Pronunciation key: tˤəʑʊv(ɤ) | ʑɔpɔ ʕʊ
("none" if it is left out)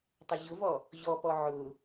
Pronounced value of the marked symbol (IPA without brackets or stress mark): ɔ